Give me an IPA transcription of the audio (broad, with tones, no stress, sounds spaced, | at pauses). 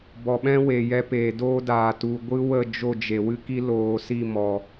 b ɔ˨ ɓ ɛ̃˦ w e˨ j ɛ˧ p eː˨ d oː˧ d aː˨ t u˨ ɡʷ ɨ˦ w ə˦˨ d͡ʒ o˦˨ d͡ʒ e˨ w ɨ˧ k i˧ l oː˨ s i˦˨ m ɔ˨